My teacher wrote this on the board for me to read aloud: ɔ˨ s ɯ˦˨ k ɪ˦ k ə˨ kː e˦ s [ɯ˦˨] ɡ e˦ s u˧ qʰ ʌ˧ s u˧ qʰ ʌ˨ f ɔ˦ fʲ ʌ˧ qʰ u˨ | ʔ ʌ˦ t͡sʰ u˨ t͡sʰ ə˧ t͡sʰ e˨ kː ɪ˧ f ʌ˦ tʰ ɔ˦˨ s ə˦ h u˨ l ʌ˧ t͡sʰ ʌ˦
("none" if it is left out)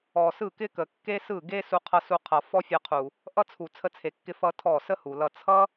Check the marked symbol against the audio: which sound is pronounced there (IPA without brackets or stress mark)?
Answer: ɯ˦˨